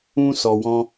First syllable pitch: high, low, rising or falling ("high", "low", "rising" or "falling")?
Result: high